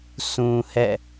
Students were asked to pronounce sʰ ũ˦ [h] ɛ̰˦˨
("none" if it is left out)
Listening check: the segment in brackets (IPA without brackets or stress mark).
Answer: h